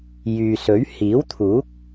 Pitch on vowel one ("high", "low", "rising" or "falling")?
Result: low